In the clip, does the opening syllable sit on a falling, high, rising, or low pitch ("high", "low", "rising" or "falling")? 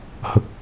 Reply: low